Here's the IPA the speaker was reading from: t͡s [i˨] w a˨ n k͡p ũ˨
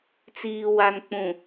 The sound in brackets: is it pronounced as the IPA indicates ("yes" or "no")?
no